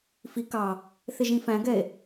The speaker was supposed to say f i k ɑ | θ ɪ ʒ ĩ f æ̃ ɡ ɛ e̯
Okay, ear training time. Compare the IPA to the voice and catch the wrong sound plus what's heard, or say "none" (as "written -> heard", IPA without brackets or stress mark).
none